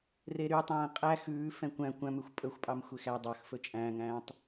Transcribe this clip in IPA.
reɾytˤæ̃ː qʼæ xʉː fɛ̃kʷæ̃ kʷæ̃mʉxʷ pʼɵxʷpʼɑm xʷexæ dˤɑx fɵt͡ʃʼæ̃ːŋæ̃ːtˤ

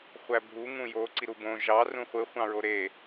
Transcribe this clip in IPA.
χʷæbʱu ŋũjo ǀiɾubõ ʒɑ rũχʷɯ χʷɑ̃ɹoɾe

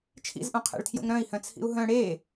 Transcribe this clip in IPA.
t͡ʃʰḭzʔõqʰɛ̰ɭtʰjo̰ŋ ɾœ̃i̯hœ̃t͡sʰḭu̯ ɦœ̃ ɽe

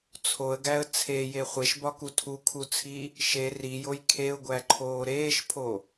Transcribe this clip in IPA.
t͡sʰoə̯ɡæə̯ t͡sʰeje χʷeʃbɒku tʰukʰut͡sʰi | ʃe rijoj kʰeʊ̯ɡʷæǃʰoː ɾeːʃpʰo

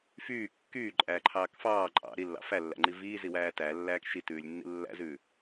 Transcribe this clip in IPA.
fyː kːyːǃʼæːǃʰɑːk fɑː ǃʼɑ̰ ɾilːɑ̰ fælːæ̰ŋ͡ǃi viːziwæː tælːæːk ʃitʉːlʲnːḭ lːæ̰zʉː

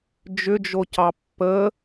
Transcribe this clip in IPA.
d͡ʒʏd͡ʒocɑ pːə

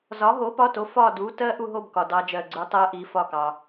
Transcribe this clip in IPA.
zɒ˨˥ɦo˨˥pɒ˧˥˧to˨˥ fɒ˦˨du˨˥ tɜ˦˥ʔu˦˨ɦo˦˨b kɒ˨dɑ˦˥d͡ʒɜ˦˨ɡ͡ǀu˦˥ tˤɜ˦˥ʔi˨˥fɒ˦˨kɑ˨

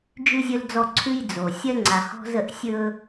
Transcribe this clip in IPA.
d͡ʒʉ˦zʲɵ˦ld͡zɔ˦ ǀʰʉ˦jd͡zo˨ sʲɜ˦ŋ͡ǀa˨hɔ̤˦zə˦˨ʔ sʲɵ˦

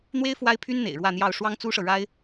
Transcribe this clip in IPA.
n̪we˥ɪ̯ fwa˥ɪ̯pʰy˥nn̪ḛ˨˩ɪ̯ ɻwä˥˧n̪jɑ˥˩ʊ̯ ʂwɑ˥ŋt͡su˥ʂɤ˨ ɻa˥ɪ̯

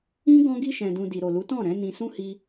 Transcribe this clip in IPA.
ĩ˦ ɡɔ̃˧ɡi˧ ʃɛ̃˨dũ˨ di˨ɾo˨lu˨˦tɔ̃˦˨ ɾɛ̃˨˦ nĩ˧sũ˦hi˧

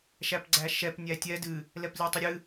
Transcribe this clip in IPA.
ʃæpɡ͡ǀæʃɛp nʲætʲɛ dɨ | lɛplʲætˤiɾʲɨ

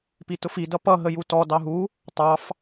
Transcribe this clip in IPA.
pitʊfi dʌpʌ ɦəjutɔ dɑɦu | tˤɑf

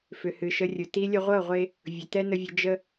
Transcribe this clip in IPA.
fʏ˨hɨ˨ʃə˧rʲʊ˨ ti˧ lʲə˧ʁʷɤ˦˨ʁʷe˧ | vʲʊ˨tɛ˦nə˧vʲə˧ d͡ʒə˧

